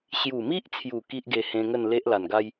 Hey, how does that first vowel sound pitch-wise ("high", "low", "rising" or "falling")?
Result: low